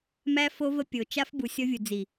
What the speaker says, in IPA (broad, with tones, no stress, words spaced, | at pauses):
mæ˦fo˦ və˦pʲo˨ t͡ʃa˦f bu˨sʲɔ˦vʲu˨ d͡zi˨